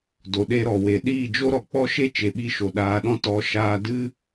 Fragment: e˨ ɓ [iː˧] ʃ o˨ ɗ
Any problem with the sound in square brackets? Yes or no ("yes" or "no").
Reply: yes